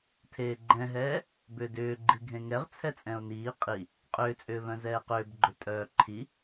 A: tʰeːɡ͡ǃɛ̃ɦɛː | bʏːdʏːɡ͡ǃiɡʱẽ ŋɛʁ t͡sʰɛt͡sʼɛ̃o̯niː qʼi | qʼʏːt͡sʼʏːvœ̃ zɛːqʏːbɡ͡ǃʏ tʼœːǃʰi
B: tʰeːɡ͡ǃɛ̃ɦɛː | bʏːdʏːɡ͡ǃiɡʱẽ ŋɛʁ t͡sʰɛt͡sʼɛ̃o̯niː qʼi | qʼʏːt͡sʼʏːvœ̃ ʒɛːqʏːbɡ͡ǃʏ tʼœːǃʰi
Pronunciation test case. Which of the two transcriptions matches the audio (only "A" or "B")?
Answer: A